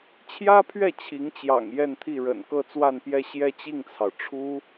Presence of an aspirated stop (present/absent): present